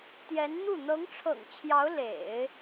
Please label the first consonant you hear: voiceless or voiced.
voiceless